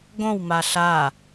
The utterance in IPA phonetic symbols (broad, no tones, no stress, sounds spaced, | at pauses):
ɡ õ w m a ɬ a